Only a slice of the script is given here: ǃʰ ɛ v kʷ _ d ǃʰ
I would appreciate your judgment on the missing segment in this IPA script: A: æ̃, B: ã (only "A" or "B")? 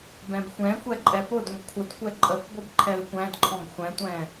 A